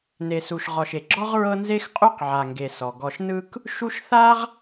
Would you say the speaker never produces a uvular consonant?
no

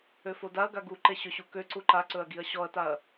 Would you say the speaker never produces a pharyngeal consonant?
yes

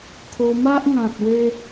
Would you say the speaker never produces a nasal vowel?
no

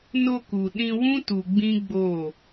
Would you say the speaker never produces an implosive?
no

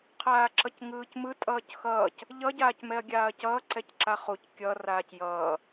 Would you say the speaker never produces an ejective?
no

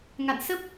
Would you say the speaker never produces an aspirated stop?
yes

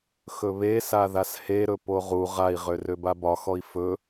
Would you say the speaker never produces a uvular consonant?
no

